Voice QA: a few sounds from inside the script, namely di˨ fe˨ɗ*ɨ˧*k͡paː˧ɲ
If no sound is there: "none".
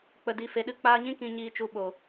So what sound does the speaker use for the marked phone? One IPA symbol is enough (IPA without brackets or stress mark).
ɨ˧